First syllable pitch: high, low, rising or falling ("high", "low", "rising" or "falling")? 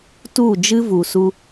falling